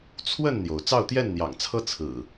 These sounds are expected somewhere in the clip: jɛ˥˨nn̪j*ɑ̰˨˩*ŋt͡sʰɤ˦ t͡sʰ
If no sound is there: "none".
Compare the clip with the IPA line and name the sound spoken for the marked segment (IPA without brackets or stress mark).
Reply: ɑ̰˨˩